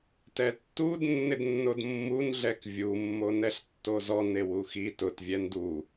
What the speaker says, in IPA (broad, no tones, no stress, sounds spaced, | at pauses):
t ɛ tː u d nː ɪ d nː o d mː u n ɮ ɛ k vʲ u mː o n ɛ ɬ tː o z ɔ n e w u x i t ʊ t vʲ ɛ n d u